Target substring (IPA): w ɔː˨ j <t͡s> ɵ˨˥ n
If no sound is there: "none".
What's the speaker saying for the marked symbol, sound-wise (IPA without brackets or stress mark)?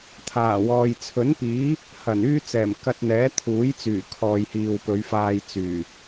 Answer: t͡sʰ